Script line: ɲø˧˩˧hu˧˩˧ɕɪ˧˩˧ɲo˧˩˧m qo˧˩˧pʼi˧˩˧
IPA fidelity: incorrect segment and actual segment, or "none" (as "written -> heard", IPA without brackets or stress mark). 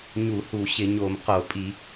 ø˧˩˧ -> u˧˩˧